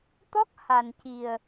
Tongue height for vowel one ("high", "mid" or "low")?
mid